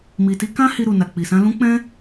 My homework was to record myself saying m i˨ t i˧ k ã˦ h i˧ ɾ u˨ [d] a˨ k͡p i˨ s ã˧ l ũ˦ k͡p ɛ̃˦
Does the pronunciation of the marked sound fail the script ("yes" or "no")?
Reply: yes